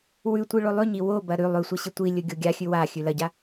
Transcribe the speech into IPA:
wʉtʷi ɭolˠʉɲi wobɐ ɾʉ lˠʉsʷɐ ɕitʷilʲɵ ɡʲoɡʲaxʲʉ wa xʲʉlɐɟa

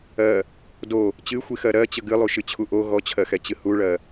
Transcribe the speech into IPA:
ɜ | do | t͡ɕɨxʷixɜ ɾɜt͡ɕə ɡɨlˠuʃɨt͡ɕʰu ʔo ɣɔt͡ɕʰɜxɛt͡ɕɨ huɭɜ

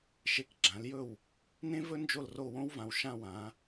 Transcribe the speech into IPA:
ʃe˧kɡ͡ǁã˩˥ljɵ˥˩w | nẽ˥vɵ˥ nd͡ʒo˥˩lro˥˩wõ˥wvã˧w ʃã˥˩wã˩˥

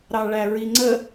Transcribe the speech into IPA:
ɾɑɭæɹiŋ͡ǀə

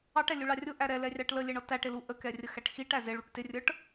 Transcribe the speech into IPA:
ɑʈɛlʲuɭɑ rʲʊʔæ ɾɛlɛrʲɑʈ ləlʲɛɳɔ tæʈɪlu ʔəkɛrʲəxæʈ xiʈæ zɪɭuʈ tɪrʲə˞ʈ

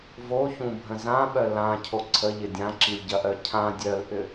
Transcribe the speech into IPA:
voçũbʱə̃ zãɓœ lãcʰo ǀʰəʎɪ dʲãǁilʲɟɐʔœ cʰã dʲœlʔʏ

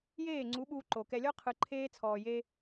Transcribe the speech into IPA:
jeː˦˨ŋ͡ǀu˨˦ ɓuː˦ǃo˨ kɛ˨lʲɔ˦qʰɯ˨ ǃʰeː˦t͡sʰɔː˨je˦

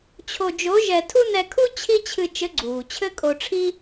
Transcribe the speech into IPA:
t͡ɕʰo˧d͡ʒo˧˥ʒɛ˧ tʰu˥nɛ˧kʰu˥ t͡ɕʰi˥t͡ɕʰɨ˧ t͡ʃɘ˧˥ɡ͡ǀuː˩t͡ɕʰɘ˥ kʼo˧ʈ͡ʂʰi˥

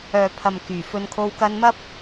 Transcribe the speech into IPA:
œː˨ pʰɐ˨mkyː˨˩fɵ˨˧nkʰo˧w kɐ˧nmɐ˥p̚

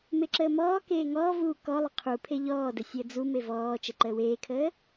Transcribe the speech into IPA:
meǁəːmɔːkeː ŋɔːvuː kɔlˠʏ qʰu pʰeʎɔːdə sʲəːd͡zume vɔː t͡ʃəǃəːweːkʰəː

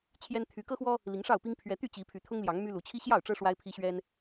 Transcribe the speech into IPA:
t͡ɕʰjɛ˦n t̪ʰy˨˦kɤ˦xwɔ˦ | li˨˦ŋʂɑ˥˨ʊ̯pi˦ŋ pʰɥɛ˦ t̪y˥˨t͡ɕi˨˦ pʰy˨˦t̪ʰʊ˦ŋljɑ˨˦ŋ my˦lu˨˦ t͡ɕʰi˦ɕjɑ˥˨ʊ̯ʈ͡ʂɤ˦ ʂwa˦ɪ̯pʰi˦ɕɥɛ˦n

